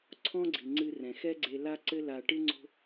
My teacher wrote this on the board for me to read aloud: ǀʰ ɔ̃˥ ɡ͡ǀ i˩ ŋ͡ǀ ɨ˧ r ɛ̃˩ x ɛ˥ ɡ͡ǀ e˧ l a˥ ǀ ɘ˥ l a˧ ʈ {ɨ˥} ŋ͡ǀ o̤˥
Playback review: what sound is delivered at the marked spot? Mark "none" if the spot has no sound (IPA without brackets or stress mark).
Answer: ɨ˥